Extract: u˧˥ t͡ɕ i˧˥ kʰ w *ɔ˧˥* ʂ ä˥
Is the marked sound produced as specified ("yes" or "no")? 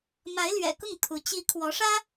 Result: yes